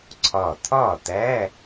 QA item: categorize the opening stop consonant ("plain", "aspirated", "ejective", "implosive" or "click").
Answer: click